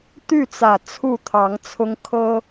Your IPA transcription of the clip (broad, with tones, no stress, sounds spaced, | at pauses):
t̪ y˥˨ t͡s ä˨˩ t͡sʰ u˥˨ t̪ʰ ɑ˨˦ ŋ t͡sʰ ʊ˦ ŋ kʰ ɤ˦